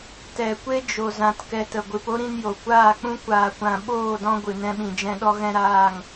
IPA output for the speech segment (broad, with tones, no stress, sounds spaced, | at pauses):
t ɛ˨ kʷ e˦ d͡ʒ o˨ z ã˧ t k ɛ˧ t ə˨ ɡʷ ɨ˧ p o˦ ɾ ĩ˧ n j o˨ kʷ aː˦˨ k͡p ũ˦ kʷ aː˧ kʷ ã˧ ɓ oː˦˨ d ɔ̃˧ ɡʷ ɨ˨ n ɛ̃˦ ɓ ĩ˨ d͡ʒ ɛ̃˦ ɗ ɔ˦ ɣ ɛ̃˦ ɾ aː˦˨ ŋ